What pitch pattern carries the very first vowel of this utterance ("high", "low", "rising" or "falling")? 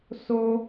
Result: high